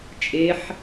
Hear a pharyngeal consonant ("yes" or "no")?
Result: yes